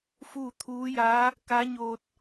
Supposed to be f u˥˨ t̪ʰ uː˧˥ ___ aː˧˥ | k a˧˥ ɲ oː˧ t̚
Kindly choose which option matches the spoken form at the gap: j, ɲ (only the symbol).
j